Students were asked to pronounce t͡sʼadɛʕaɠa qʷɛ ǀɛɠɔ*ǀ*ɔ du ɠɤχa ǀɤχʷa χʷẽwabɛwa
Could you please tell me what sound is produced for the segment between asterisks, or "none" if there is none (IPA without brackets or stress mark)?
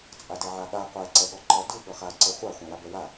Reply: ǃ